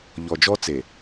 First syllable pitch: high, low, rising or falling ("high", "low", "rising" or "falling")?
low